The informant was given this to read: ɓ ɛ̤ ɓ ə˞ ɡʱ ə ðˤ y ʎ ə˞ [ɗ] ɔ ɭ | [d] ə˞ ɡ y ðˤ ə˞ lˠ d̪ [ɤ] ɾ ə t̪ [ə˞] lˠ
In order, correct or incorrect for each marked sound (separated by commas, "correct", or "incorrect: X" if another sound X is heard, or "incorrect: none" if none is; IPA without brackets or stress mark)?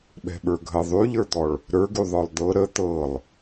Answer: incorrect: d̪, incorrect: ɾ, correct, incorrect: ɤ